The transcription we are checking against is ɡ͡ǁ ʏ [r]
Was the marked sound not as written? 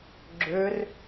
no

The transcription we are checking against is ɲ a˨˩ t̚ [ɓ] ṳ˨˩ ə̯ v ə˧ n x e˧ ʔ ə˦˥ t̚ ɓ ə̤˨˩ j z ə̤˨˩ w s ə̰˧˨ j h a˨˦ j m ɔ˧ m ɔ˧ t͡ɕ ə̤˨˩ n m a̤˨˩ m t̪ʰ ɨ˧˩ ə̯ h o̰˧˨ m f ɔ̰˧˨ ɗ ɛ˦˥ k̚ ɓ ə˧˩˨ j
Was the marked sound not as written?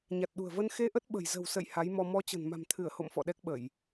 yes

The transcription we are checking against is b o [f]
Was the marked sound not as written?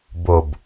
yes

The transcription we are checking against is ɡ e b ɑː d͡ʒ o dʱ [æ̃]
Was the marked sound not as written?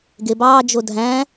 no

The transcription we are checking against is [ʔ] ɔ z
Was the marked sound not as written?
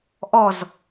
no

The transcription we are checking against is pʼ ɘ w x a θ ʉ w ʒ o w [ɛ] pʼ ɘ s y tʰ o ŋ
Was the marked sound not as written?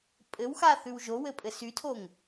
yes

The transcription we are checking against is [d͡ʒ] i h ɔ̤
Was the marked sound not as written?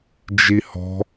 no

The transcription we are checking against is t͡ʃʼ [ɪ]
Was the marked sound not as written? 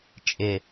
no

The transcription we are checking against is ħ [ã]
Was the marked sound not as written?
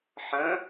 yes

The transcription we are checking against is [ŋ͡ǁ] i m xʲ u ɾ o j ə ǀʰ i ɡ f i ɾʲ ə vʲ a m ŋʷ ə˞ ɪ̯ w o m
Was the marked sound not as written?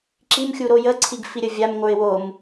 yes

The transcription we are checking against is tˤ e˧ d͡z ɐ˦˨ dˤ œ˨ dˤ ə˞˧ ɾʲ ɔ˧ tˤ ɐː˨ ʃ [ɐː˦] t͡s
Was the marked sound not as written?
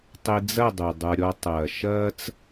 no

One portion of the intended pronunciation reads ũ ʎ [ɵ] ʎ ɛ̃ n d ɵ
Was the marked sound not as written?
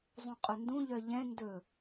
yes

